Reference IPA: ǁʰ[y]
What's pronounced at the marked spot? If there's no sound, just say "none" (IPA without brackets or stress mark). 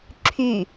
y